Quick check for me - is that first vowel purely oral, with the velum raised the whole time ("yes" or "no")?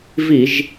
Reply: yes